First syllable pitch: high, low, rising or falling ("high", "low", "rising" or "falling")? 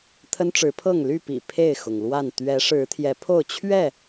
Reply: high